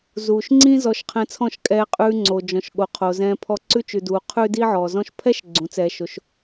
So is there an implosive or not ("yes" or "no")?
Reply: yes